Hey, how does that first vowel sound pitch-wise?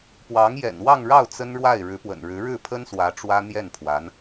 rising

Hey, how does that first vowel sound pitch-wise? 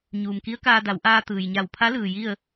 low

